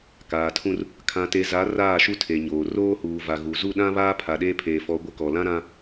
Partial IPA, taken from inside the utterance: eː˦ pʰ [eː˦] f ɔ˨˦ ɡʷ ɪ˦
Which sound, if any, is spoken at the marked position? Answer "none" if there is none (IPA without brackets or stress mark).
eː˨